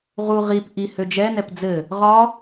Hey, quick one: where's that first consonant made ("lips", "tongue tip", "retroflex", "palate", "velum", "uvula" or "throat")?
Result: uvula